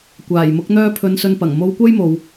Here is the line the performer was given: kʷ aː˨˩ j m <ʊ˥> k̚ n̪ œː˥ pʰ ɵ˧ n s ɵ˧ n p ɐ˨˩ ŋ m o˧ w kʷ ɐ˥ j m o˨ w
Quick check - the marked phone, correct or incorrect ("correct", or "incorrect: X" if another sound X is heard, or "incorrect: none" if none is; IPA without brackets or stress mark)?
incorrect: ʊ˧